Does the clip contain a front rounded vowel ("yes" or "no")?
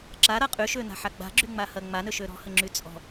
yes